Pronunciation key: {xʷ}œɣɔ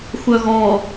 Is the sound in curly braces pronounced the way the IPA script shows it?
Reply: yes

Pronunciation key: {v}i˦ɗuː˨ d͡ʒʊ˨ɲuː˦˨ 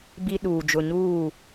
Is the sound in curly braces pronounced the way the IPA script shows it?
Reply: no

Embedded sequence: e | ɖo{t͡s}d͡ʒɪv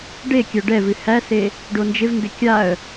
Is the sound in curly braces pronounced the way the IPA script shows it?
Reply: no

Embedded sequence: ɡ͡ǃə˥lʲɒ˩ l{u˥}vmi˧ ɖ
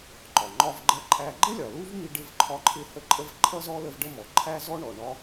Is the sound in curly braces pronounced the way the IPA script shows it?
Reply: yes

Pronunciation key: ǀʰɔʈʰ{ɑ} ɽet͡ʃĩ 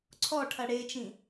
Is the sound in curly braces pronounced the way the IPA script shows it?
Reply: no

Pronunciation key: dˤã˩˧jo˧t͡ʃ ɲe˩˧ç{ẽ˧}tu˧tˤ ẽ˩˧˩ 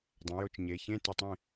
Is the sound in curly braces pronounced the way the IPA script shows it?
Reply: no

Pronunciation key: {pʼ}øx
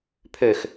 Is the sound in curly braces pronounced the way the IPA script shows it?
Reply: no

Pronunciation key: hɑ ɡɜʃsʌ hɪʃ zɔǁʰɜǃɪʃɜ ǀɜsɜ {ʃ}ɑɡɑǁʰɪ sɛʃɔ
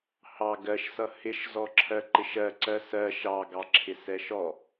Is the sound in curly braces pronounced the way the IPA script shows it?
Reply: yes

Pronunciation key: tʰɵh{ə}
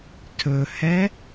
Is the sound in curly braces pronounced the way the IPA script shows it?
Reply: no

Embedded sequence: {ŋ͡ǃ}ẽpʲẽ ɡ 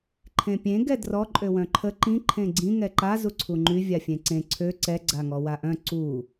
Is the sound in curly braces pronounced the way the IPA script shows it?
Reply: no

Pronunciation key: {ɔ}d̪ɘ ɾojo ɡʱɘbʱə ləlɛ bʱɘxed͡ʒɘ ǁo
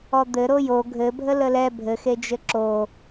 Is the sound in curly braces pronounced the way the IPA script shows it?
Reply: yes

